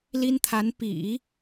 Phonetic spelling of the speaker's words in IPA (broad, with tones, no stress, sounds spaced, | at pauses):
l i˥ n t̪ʰ a˧˥ n p ḭ˨˩˦